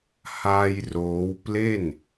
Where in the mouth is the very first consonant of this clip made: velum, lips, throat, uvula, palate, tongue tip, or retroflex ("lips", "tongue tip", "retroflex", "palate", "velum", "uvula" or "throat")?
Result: throat